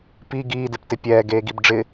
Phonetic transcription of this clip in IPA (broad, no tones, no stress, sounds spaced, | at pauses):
p i ɡ iː d ɪ p t ɪ pʲ ɛː ɡ eː ɡ i b ɖ͡ʐ ɪ